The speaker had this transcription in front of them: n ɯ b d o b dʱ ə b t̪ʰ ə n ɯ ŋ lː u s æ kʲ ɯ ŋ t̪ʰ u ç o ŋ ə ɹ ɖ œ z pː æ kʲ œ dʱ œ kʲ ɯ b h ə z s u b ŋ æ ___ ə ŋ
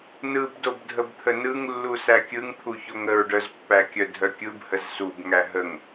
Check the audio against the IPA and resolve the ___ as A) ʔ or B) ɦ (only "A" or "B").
B